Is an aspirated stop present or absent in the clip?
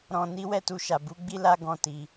absent